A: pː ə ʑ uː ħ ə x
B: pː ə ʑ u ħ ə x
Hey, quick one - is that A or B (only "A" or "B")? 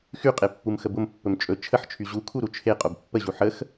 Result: B